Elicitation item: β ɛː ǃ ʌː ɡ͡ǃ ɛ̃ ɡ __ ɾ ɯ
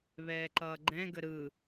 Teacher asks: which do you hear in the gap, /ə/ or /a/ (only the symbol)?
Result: ə